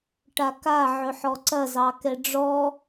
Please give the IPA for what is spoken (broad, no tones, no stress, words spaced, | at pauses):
ʈaka ʕɵħɔǀɐ zɑkɛɖ͡ʐɔ